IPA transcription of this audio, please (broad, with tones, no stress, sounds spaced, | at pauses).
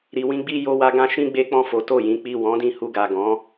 ɾ i˨ w ĩ˧ ɡ͡b i˧ j o˧ w a˧ ɡ ã˧ ʃ ĩ˦ ɡ͡b e˦ k͡p ɔ̃˦˨ f o˨˦ t o˦˨ j ĩ˨˦ k͡p i˦˨ w ɔ̃˨˦ d ĩ˧ h u˧ ɡ a˨ ɡ ɔ̃˨˦